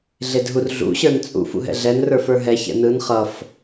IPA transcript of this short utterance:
ɮ e d ɦ u r ɮ ṵ ɕ ə˞ n t͡sʼ ṵ f ṵ ɦ ɛ̰ ɮ ɛ n r ə˞ f ə˞ ɦ ɛ ç ɛ̰ n ɯ n χ ʌ f

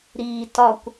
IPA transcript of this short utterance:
ɾ iː t ɒ kʷ

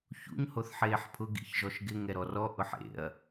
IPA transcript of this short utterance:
ç ṵ ɲ h o θ ħ eː ħ pʰ ʊ ɡ ḭ ç ʒ ɔ ʃ ɡ ɪ ŋ ɛ ɾ ɔ r ɔ ʔ ʊ ħ ḛ ɐ̯

